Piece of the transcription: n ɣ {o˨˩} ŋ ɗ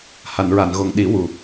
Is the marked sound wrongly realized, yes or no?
no